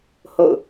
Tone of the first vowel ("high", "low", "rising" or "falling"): falling